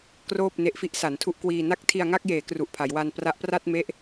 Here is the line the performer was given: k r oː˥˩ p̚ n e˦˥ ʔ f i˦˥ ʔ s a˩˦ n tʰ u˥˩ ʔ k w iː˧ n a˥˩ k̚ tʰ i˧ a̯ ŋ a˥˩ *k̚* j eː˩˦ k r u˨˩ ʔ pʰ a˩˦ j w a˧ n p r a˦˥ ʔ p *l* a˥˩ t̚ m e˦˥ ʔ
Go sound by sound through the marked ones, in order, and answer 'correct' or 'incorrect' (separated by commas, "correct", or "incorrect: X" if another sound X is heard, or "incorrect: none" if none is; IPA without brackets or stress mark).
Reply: correct, incorrect: r